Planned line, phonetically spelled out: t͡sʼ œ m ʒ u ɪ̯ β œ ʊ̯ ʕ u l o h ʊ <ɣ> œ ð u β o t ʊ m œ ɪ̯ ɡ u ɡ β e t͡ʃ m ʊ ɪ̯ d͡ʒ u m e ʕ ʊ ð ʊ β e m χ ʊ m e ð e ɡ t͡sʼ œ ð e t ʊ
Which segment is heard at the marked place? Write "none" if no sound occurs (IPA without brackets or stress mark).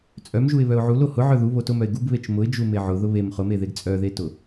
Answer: ʕ